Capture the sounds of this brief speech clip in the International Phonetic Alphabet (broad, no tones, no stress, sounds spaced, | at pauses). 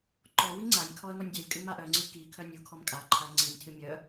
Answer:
ǃ ɔ w i ŋ͡ǀ a nʲ kʰ ɔ ə̯ ŋ ɔ nʲ dʲ œ lʲ kʼ ɨ m a ʔ œ ŋ͡ǀ ɨ k i kʰ œ nʲ u kʰ ɔ m kʼ a ǃʰ a ŋ͡ǀ i nʲ tʰ ɨ mʲ œ